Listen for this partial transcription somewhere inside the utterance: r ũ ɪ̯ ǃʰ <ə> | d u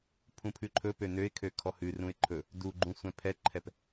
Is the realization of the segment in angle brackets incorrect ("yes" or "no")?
yes